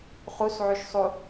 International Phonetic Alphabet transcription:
χ u s ʕ y ʃ sˤ u

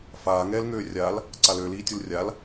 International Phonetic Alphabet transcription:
f aː ŋ ɛː l ŋ øː rʲ a l | ǀ a l ø l iː tʲ u l rʲ a l

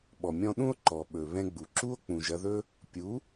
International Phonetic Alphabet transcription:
ɓ ɔ˨ mʲ ɔ̃˧ ɗ ũ˦ o̯ ǃ ɔ˨ ɓ ɵ˨ β ɛ̃˧ ɡ͡b u˨ ǁ u˦ o̯ k͡p ũ˨ ʒ ɐ˧ ð ɵ˦ | pʲ u˨˦

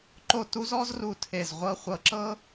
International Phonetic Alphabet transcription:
ǃ o˥˧ t u˥ z ɔ˥ z r u˧˩ tʰ e˧˩ z ʁʷ ɤ˥˧ χʷ ɤ˧˩ ǁ ɤ˥

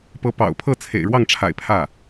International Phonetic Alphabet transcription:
p ɤ˧˥ p ɑ̰˨˩ ʊ̯ pʰ ɤ˥˩ t͡sʰ ḛ˨˩ ɪ̯ ɻ w ɑ˥˩ ŋ ʈ͡ʂʰ a̰˨˩ ɪ̯ pʰ ä˥˩

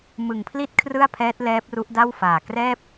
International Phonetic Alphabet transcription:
m ɯ˨˩ ŋ pʰ l i˥˩ t̚ kʰ r ɯ˥˩ a̯ pʰ ɛː˦˥ t̚ l ɛː˦˥ p̚ r u˦˥ ʔ d a˥˩ w f aː˨˩ k r ɛː˥˩ p̚

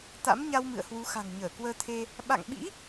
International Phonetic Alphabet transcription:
t̪ a̰˧˥ m ɲ a˧ w m ɨ̰˧˨ ə̯ h w u˨˦ x a̤˨˩ ŋ ɲ əː˧˩ k w əː˧ t̪ʰ e˧ | ɓ a̰˧˨ ŋ ɓ ḭ˧˥

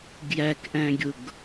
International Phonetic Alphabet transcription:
ɡ j æ k ʔ æ̃ ɡʲ ʊ ɡ

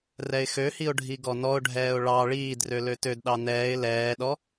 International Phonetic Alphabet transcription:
r ɛ ɪ̯ x ø h i ʊ̯ ɖʱ i ɡ ɔ n ɔ ʊ̯ ɖʱ ɛː ʊ̯ ɭ ɑ ɭ iː d r ø l ø t ø d ɗ ɑ n ɛː ɪ̯ l ɛː ɗ ɔ

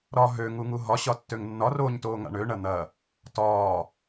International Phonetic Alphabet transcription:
ɾ ɒ ɦ ø ŋ u ŋ u ɦ ɒ ɕ ɒ tː ø ŋ nː ɒ r oː ɲ t oː ŋ a̰ ɳ ø ɳ ɐ n̪ ɐ | t ɒː

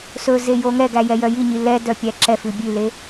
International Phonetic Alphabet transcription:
s ɵ z e j o ŋ ɛ ɡ æ j ɛ j œ j i ɲ i l ɛ d œ pʲ æ ǁ ɛ f ʉ bʲ ʉ l e

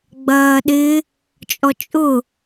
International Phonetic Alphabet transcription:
ɡ͡b ɐː ɗ ɪ | t͡ʃʼ ɔ t͡ʃʼ ʊ

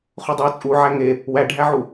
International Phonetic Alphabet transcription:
χ u dˤ e w t͡sʼ u ʕ æ ŋ e | w æ ɖʱ æ ʕ u

